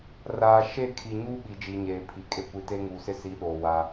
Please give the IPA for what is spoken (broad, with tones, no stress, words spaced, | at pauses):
raː˨ ʃe˦˨kʰi˨ɲuː˦ ɓi˨d͡ʒi˨ ɲeː˨pʰi˨ kʼe˦kʷi˨te˦ ŋuː˨sɪ˦si˨˦ ɗoː˨ wa˦